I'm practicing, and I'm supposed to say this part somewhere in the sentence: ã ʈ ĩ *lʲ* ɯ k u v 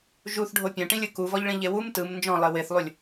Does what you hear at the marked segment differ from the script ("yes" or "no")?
no